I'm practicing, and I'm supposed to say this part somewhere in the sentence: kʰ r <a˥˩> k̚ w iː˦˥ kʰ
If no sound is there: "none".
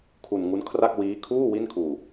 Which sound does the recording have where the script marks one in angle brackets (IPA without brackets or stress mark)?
a˥˩